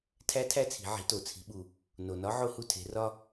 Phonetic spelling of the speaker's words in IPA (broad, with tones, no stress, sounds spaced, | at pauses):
tʰ æ˧˥ tʰ æ˧ t͡sʰ i̤˩˧ ʕ i̤˩˧ t o˩ t͡sʰ i̤˩˧ ɓ u˩ | n o˩ n ɒ˧˥ ʕ o˧ h u˧ tʰ e̤˩˧ r ɒ˧